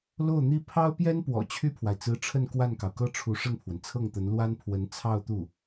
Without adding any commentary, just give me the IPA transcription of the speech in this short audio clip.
l o˥˩ ʊ̯ n̪ i˥ pʰ ɑ˥ ʊ̯ p j ɛ˥ n p w ɔ̰˨˩ t͡ɕʰ y˥˩ pʰ w a˩ ɪ̯ t͡s ɹ̩˧˥ ʈ͡ʂʰ ə˥˧ n k w a˥˩ n k ɑ˩ ʊ̯ k ɤ˥ ʈ͡ʂʰ u˧˥ ʂ ə˥˩ n pʰ w ə˩ n t͡sʰ ɤ˥˩ ŋ t̪ ə˧˥ n l w a˥ n pʰ w ə˧˥ n t͡sʰ ɑ˥˧ ʊ̯ t̪ u˥˩

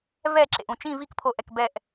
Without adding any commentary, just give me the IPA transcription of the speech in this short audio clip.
v ɛ˦˨ ǁ ḛ˨ ʔ ũ˨ t͡ʃ ĩ˦˨ v i˦˨ k pʰ o˨ ʔ ɛ˨ k b ɛ˦˨ ʔ

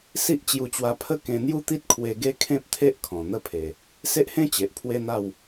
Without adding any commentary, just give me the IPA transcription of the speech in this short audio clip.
s i˦ ʔ t͡ɕ j u˧ t͡ɕ w a˧ pʰ ə˦ k ẽ˧ n̪ j u˦ t̪ i˦ t̚ kʰ w e˧ ɡ e˦ kʰ ẽ˦ p̚ t̪ʰ e˦ ʔ kʰ ɔ̃˨˩ n̪ ə˥˧ pʰ e˨˩ | s e˦ ʔ h ẽ˦ t͡ɕ e˨ ʔ pʰ w e˦ n̪ a˥˧ w

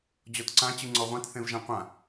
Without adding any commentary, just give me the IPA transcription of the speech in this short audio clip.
d͡ʑ ɔ t ǀ ã t͡ɕ ɯ ŋ͡ǀ ɔ ʁʷ ã t θ ẽ v ʒ ã qʷ ã

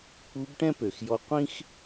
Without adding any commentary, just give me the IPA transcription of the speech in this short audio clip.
k͡p u˧˥ b ʈ ɛ̃˥ p ø˩ x j ɔ˧˥ qʷ ĩ˥ x

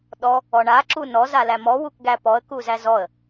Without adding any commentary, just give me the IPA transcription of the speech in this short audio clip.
ɗ ɔ | ɔ ɳ a ǁ u n ɔ z a l æ m ɔ w u k ɡ æ p ɔ ə̯ k u z æ z ɔ ə̯

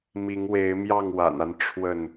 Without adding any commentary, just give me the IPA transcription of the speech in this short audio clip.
m i˨˦ ŋ w e˨˦ ɪ̯ m j ɑ˥˨ ŋ w a̰˨˩ n a˦ n ʈ͡ʂʰ w ə˥˨ n

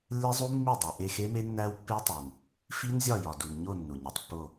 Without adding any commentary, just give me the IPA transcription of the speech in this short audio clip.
lː e˦˥ zˤ u˦˥ mː i˦˨ dˤ æ˩ ʔ e˦˨ x e˦˥ m e˦˥ nː æ˦˥ w pː e˦˥ tˤ u˩ n | f i˦˥ n zʲ ɒ˦˨ j ɒ˩ d u˩ n ɲ o˦˨ nː u˩ ɲ æ˩ tˤ pː o˦˨

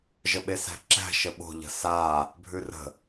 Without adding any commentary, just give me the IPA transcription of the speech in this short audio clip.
ʒ ə ɓ e s æ̤ ǁ æ̤ ʃ ə ɓ o̤ ʎ ə̤ s a | bʱ ʉ r ə̤

